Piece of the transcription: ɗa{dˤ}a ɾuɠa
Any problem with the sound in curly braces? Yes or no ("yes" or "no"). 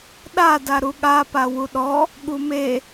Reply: yes